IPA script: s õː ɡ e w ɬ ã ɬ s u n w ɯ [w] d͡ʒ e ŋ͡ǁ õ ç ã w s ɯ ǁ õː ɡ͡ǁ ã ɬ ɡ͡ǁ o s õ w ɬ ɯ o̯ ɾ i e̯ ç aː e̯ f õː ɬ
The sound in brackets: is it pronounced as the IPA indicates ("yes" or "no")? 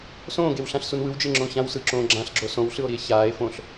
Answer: yes